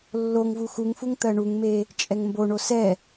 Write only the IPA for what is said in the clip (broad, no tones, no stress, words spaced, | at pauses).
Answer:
lːoŋvu xuŋfuŋ t̪ɜɳuŋme | t͡ʃʼɛŋmboɳo sɛ